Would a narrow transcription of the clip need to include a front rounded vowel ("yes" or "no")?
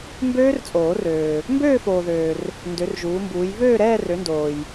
yes